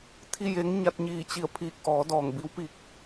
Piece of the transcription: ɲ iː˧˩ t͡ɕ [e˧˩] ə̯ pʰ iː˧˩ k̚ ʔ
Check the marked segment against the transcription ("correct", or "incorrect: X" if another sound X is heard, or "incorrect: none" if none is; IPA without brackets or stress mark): incorrect: i˧˩